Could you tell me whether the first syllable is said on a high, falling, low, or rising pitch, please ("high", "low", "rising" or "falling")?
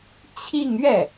falling